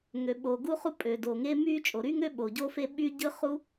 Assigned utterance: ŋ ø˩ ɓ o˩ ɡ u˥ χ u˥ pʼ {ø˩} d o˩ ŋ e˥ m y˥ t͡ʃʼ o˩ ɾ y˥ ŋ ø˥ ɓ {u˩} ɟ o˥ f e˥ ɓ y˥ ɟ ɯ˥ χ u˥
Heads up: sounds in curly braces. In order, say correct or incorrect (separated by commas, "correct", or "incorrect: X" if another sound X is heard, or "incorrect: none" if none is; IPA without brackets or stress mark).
correct, incorrect: o˩